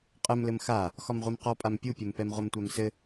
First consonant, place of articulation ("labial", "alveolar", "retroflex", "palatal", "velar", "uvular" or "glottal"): uvular